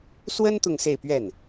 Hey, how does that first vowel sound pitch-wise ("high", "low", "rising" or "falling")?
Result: high